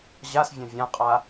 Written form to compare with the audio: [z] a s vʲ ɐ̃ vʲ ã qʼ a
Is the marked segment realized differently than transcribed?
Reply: yes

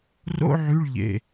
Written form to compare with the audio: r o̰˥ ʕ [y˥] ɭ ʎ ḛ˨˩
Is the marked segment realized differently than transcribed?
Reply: yes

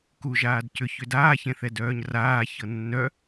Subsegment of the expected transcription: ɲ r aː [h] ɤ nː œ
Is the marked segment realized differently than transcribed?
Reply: yes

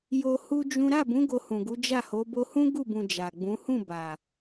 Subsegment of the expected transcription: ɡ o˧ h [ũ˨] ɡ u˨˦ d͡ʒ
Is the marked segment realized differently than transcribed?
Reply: no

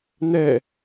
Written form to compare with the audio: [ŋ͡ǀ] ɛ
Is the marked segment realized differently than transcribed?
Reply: yes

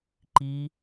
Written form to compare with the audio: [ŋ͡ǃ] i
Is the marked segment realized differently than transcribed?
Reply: yes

